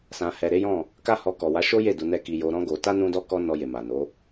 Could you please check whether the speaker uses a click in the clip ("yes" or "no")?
no